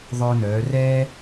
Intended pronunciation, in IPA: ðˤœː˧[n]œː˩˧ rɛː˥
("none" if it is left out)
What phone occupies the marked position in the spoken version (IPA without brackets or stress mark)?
n